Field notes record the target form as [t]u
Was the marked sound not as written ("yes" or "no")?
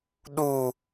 yes